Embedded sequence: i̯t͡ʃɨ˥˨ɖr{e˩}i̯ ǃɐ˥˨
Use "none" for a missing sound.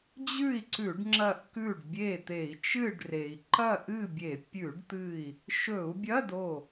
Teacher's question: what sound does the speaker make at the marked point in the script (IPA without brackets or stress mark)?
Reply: e˩